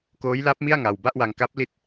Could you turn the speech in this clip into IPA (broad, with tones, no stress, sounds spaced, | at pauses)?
k oː˦˥ j l a˦˥ p̚ m i˥˩ a̯ ŋ a˧ w b a˥˩ ʔ w a˧ ŋ k a˦˥ p̚ l i˦˥ t̚